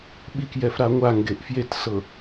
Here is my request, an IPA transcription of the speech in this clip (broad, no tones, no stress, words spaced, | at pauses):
ɓikjɛf ɾaŋʷaŋɡeʔ fjetsɤ